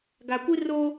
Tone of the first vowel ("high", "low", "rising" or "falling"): low